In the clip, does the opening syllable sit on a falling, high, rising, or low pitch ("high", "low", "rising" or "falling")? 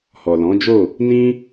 low